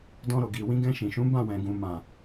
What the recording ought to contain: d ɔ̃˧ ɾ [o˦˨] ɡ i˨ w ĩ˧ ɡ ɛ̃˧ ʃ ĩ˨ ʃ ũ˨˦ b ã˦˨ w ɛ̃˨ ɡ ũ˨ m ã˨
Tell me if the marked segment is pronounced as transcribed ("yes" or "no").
no